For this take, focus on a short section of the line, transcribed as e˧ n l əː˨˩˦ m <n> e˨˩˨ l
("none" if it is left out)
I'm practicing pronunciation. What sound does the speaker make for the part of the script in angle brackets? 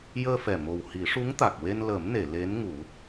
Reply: n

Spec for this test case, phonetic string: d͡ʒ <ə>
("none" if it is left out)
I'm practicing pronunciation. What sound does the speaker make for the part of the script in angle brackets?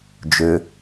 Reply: ø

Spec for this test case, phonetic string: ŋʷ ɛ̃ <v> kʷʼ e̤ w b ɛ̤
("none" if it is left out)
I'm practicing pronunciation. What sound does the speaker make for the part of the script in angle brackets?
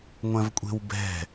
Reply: v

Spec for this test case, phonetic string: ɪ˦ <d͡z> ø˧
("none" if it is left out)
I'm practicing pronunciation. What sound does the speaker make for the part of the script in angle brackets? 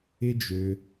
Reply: d͡ʒ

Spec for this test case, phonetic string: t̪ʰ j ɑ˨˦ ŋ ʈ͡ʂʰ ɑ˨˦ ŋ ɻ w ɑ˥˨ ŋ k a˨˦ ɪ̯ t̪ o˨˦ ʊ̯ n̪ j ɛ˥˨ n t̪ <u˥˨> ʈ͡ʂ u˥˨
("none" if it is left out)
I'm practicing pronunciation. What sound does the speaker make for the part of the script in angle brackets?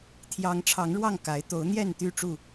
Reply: y˥˨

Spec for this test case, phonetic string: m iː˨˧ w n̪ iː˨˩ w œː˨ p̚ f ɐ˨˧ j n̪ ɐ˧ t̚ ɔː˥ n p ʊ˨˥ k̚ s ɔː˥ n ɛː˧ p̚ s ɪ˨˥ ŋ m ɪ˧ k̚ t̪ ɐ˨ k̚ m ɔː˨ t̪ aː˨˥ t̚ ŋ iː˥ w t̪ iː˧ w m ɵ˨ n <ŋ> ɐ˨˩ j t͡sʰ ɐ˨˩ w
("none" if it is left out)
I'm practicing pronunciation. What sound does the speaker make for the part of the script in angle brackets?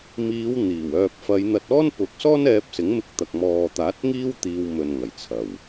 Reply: ŋ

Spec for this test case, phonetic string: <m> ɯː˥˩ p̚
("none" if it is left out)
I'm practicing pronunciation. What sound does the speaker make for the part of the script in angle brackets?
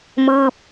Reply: m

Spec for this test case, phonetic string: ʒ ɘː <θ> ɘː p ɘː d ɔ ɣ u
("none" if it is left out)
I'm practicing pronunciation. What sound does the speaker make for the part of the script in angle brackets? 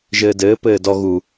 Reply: d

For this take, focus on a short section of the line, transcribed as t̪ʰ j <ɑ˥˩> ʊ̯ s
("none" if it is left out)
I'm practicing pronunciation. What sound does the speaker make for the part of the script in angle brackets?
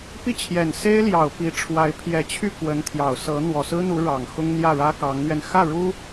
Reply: ɑ˨˩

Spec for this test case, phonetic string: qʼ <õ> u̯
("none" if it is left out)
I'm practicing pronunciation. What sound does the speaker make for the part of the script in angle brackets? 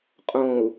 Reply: õ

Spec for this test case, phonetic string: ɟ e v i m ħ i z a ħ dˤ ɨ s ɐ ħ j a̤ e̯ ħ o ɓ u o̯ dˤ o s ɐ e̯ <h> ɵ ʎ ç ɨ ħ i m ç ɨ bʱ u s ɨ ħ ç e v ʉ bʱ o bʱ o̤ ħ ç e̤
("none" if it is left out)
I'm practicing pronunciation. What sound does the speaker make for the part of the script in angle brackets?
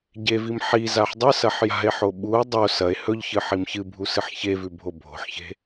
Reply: h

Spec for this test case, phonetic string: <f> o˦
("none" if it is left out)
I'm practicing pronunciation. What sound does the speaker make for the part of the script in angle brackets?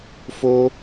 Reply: f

